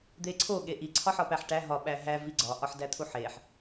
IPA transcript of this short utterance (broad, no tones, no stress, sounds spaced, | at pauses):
d̪ e ǀʰ o ɠ e ʔ i ǀʰ ɒ ħ ɒ p æ ħ ʈ æ ɦ ɒ ɓ æ ɦ æ v i ɡ͡ǀ ɒ ʔ ɒ ħ d æ t̪ʰ u ħ e ħ